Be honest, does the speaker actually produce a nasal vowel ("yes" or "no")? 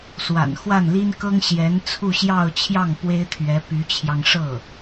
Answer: no